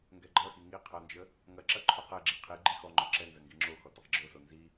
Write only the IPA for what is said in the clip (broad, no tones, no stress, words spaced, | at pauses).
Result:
ŋɡɛɡ͡ǃʌxi ŋi qʰʌnd͡ʒə | ŋɐǁɐ ǃʰoqɛɡ͡ǁi qʰi ɡ͡ǃixɔŋ͡ǃɔ ǁɛ nzɐŋɡiŋ͡ǁoxɔ təqɡ͡ǁoso nzi